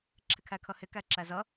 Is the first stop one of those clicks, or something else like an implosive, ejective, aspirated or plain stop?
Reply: click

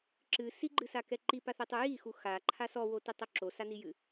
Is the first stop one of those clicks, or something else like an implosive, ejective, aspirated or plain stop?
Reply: click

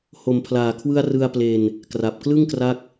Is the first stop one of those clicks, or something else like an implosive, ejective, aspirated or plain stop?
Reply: aspirated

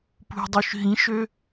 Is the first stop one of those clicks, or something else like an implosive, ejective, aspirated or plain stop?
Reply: plain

